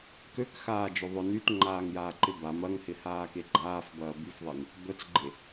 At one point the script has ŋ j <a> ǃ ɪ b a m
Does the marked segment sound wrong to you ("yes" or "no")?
yes